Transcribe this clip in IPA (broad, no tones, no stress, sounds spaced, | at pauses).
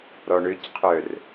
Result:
ɾ ɔ ɳ ø c qʰ œ r